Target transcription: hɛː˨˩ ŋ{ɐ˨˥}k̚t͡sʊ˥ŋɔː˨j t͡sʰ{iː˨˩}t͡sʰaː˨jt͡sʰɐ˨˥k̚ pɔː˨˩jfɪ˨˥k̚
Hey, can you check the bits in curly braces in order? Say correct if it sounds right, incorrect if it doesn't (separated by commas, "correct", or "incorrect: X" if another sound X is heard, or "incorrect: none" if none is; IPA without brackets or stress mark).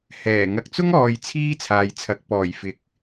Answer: incorrect: ɐ˨, incorrect: iː˥